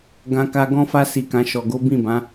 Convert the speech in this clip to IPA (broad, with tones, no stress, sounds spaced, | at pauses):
ɡ ã˧ k a˧ ɡ ɔ̃˦ f a˦ s i˧ k ã˧ ʃ ɔ˨ ɡ o˨˦ b ĩ˦˨ b ã˨˦